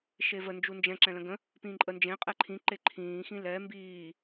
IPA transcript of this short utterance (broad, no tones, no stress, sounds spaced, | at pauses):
ʃ e v ə n d͡ʒ u n d͡ʒ ɛ̃ ǁ ɛ̃ l ə̃ ɡ ə̃ | p ĩː ǃʼ ə n d͡ʒ ẽ qʼ ɛ ǃʰ ĩ ǃ e ǃʰ ĩː x ĩ l ɛ m b iː